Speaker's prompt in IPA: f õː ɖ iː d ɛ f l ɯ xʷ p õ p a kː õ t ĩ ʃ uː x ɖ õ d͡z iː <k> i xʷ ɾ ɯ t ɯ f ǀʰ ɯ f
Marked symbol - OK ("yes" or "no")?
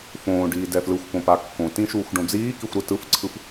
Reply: yes